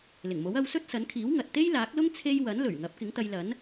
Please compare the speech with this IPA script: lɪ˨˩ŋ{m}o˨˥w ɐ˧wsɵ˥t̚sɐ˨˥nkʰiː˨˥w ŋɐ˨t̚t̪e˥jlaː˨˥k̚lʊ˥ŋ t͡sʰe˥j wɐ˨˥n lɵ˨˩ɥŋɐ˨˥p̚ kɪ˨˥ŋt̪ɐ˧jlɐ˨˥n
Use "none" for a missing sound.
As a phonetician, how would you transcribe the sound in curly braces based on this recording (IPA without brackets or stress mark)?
m